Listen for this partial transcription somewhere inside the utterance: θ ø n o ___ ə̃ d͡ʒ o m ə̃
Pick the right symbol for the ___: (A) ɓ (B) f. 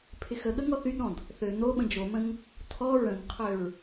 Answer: A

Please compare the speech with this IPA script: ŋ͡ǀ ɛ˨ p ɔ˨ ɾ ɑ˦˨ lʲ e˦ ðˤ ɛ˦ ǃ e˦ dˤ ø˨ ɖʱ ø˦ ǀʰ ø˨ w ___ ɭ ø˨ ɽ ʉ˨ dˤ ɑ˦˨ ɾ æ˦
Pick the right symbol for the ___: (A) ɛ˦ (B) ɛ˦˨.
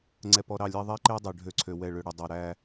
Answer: B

